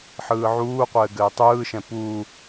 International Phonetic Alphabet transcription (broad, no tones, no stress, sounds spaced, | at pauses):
ħ ɯː ʕ uː qʷ ɘː ɡ ɘː tˤ ɯː ʃ ɛ̃ p u